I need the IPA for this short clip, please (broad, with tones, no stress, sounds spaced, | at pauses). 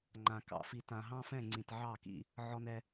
ŋ͡ǃ ã˨ k ɑ̰˨ f i˨ t ã˨ ɦ ɑ̃˦ f ɛ̃˦˨ ŋ͡ǀ ĩ˨ t ʕ ɑ˦˨ k ḭ˦ | ʕ ɔ˦ n ɛ˦